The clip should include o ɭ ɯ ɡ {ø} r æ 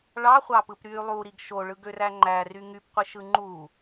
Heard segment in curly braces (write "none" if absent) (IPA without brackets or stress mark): ø